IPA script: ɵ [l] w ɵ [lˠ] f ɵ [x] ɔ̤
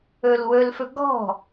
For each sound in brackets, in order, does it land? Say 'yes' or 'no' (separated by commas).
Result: yes, no, no